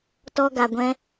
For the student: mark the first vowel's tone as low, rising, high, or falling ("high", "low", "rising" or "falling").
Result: high